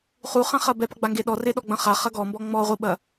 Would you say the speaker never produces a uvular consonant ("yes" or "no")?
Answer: no